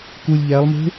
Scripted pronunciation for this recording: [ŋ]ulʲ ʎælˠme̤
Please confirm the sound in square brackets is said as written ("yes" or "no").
no